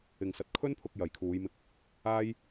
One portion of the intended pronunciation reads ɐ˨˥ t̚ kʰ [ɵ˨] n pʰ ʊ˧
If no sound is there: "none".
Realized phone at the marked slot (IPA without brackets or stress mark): ɵ˥